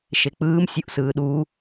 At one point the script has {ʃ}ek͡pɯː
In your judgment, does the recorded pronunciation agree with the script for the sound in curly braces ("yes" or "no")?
yes